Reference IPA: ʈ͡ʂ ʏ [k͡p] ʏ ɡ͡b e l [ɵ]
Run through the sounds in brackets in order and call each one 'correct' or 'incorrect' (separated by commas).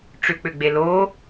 correct, incorrect